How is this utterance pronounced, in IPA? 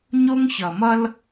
ɲ o˦ ŋ ç ʌ˨ m ʌ˦ l

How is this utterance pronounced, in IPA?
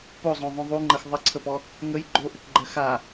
p o zˤ õ ðˤ õ ðˤ u ŋ͡ǃ ə x ðˤ ə ǀʰ ə p ɔ | ŋ ə j ɡ͡ǃ o ʔ ɘ k ɡ͡ǃ ɜ x a

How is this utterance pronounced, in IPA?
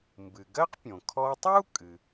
m b ɨ˩ ɡ ɜ˥ q pʲ õ˩ kʰ ɔ˧ tˤ u˥ kʼ ɨ˩

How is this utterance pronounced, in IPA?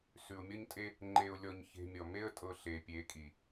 s ʉ˨ ʊ̯ mʲ ɔ˦ ɲ tʼ e˦ | ŋ͡ǃ e˧ ʊ̯ lʲ ɔ˧ ɲ ç e̤˧ mʲ ɔ˨ m e˦ ə̯ tʼ ɤ˧ ɬ e˨ pʲ e˨˦ kʼ i˨

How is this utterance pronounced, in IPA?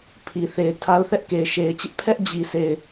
pʰ i˨ θ e˨ ɪ̯ tʰ a˦ ʊ̯ θ ɛ˦ ʔ k e˨ ɪ̯ ʃ e˨ ɪ̯ t͡ɕ ɪ˦ ʔ pʰ ɛ˦ ʔ d͡ʑ i˨ sʰ e˨ ɪ̯

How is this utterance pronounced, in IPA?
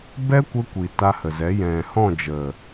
b ɛ˦ kʷ ə˧ kʷ i˨ t a˧ h ə˨ z ɛ˨˦ j ɛ̃˨ h ɔ̃˦˨ d͡ʒ ə˨

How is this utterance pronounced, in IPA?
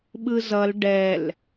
ɓ ɯ z ʌ l ɖ ɛ l

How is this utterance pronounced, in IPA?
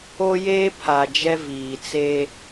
o˦ j eː˦ pʰ a˨ d͡ʒ ɛ˦ v iː˨ t͡s e˦

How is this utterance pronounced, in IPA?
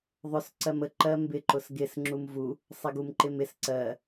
ðˤ ʊ s ǀ ɜ m ə ǃ ɜ m b ɪ ǃ ʊ s ɡ ɪ s ŋ͡ǁ u m v u | sˤ ɪ ɡ u m ǃ ɪ m ɪ s ǀ ɜ

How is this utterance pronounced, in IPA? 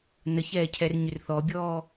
n ə ç ɛː cʰ ɛ r ɲ ʏ r θ ɔ bʲ ɔː

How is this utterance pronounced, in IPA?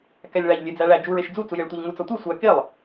k æ lʲ ɭ æ ʎ lʲ e d͡z æ ɭ æ d͡ʒ u ɹ e ʃ d͡z u t͡s u j e ɭ tʷ æ ʎ ŋ u t͡s ɒ tʷ i sʷ æ k e lˠ

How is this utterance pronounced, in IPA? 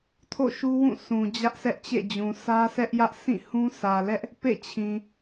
tʰ o̰˦˨ ʃ u˦ w ũ˦˨ s ũ˨ d͡ʑ ä˦ ʔ sʰ ɛ˦ ʔ t͡ɕ ḛ˦˨ d͡ʑ ũ˨ sʰ ä˦ s ɛ˦ ʔ j ä˦ ʔ s ĩ˦˨ h ũ˦ s ä˨ l ɛ˦ ʔ | p ḛ˦˨ t͡ɕʰ ĩ˨

